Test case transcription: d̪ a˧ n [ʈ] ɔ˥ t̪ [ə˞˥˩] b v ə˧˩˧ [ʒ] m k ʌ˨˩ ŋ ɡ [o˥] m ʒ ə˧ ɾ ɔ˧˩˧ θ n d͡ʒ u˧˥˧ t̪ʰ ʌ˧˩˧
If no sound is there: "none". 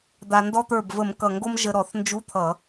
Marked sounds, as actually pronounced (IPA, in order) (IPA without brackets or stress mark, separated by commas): d, ə˞˥˩, none, o˥